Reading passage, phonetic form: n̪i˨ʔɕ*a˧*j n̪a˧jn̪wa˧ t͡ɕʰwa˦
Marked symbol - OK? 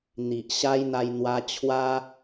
no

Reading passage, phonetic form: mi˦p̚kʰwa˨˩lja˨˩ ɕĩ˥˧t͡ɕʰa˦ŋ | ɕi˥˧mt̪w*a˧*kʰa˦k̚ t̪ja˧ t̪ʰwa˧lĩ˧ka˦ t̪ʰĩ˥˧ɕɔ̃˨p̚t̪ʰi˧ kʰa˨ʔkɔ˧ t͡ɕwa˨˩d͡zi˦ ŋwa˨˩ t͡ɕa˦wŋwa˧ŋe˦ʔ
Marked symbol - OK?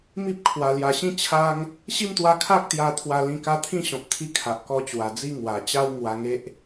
yes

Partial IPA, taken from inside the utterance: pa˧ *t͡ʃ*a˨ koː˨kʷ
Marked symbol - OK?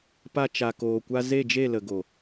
yes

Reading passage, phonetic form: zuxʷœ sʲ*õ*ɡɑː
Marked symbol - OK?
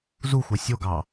no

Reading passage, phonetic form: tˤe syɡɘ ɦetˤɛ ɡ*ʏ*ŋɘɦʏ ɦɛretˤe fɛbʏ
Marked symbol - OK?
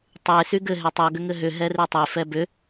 yes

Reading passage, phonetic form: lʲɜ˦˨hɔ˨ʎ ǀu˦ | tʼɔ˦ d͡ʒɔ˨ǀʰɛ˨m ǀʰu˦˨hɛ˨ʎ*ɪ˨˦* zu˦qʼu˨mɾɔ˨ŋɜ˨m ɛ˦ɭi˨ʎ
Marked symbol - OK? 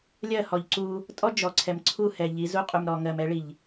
no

